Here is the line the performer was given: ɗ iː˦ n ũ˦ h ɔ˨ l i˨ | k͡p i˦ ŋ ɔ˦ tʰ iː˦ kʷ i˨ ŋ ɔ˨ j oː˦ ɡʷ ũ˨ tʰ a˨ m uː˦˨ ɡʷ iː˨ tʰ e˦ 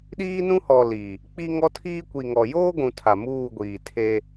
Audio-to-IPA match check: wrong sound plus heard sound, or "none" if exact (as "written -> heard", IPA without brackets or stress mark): none